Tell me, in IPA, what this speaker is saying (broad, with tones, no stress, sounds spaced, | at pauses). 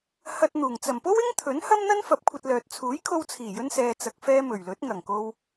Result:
h ɐ˧ t̚ n̪ uː˨˩ ŋ t͡s ɐ˨˩ m p o˥ w ɪ˥ ŋ t̪ʰ ɵ˨˥ n h ɐ˥ m n̪ ɐ˥ n f ɐ˨˥ p̚ kʷʰ ɐ˧ t̚ l œː˨ t̚ t͡sʰ uː˨˥ j kʰ o˧ w t͡sʰ iː˨˩ j ɵ˧ n s ɛː˨ t͡s ɐ˨ k̚ f ɛː˧ m ɵ˨˩ ɥ l ɵ˨˥ t̚ ŋ ɐ˨˩ ŋ k o˧ w